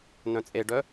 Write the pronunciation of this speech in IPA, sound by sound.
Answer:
n œ̃ t͡sʼ e ɖ œ

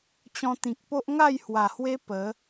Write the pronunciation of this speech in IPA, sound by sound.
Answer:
t͡ɕ ɔ̃˧ t̪ ĩ˨ k̚ p o˦ ʔ ŋ a˥˧ j h w a˨˩ h w e˦ p ə˨˦

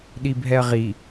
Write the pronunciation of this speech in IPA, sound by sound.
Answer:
ɗ i bʱ ɛ ɐ̯ ʁ i

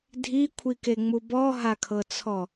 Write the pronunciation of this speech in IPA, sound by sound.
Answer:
dʱ i kʷʰ i k e ŋ͡m u b ɔ ɦ a kʰ ɤ t͡sʰ ɔ

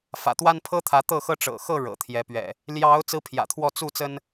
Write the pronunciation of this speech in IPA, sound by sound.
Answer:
f ä̰˨˩ t̪ w a˦ n pʰ ɤ˦ t̪ʰ ä˨˦ t̪ ɤ˥˨ x ɤ˦ ʈ͡ʂ ɤ̰˨˩ x ɤ˥˨ ɻ ɤ̰˨˩ t̪ʰ j ɛ˨˦ p ɥ ɛ̰˨˩ | l j ɑ˨˦ ʊ̯ t͡s ɹ̩˦ pʰ j ä̰˨˩ t̪ʰ w ɔ˥˨ t͡s u˥˨ t͡s ə˦ n

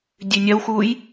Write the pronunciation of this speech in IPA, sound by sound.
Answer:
dʲ ʉ nʲ ɐ w x uː j

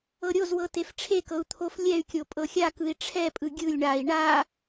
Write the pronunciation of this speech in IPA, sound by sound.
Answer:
ɤ ɾʲ o z w ɤ t e f ʈ͡ʂʰ e k ɤ u̯ t̪ʰ o f lʲ ɛ y̯ kʲ o pʼ ɤ xʲ a k ɯ i̯ ʈ͡ʂʰ ɛ pʼ ɯ ɡʲ ɯ lʲ ɳ a i̯ ɳ a

